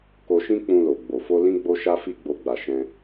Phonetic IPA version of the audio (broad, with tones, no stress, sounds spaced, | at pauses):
k o˧ ʃ ĩ˦ k͡p ũ˧ l o˨ ɡ͡b o˨ f o˧ l ĩ˧ ɡ͡b o˧ ʃ a˦ f i˦ ɡ͡b o˧ ɡ͡b a˨ ʃ ɛ̃˧